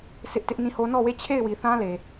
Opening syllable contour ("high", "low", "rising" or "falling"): high